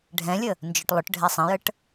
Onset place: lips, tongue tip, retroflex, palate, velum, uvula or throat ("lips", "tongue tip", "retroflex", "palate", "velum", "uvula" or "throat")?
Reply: retroflex